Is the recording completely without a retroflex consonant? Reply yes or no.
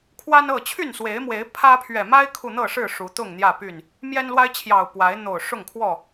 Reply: no